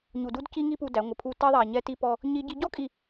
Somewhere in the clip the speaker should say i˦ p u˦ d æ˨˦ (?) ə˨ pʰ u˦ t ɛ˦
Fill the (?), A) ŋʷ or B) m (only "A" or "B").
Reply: A